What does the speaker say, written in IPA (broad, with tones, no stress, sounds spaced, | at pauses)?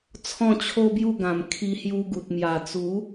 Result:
t͡sʰ ɔ̃˥˧ t͡ɕʰ o˦ b j u˥˧ ɡ ã˨˩ m kʰ i˧ h j u˧ ɡ u˨ t̚ m j a˨˩ t͡s u˨˦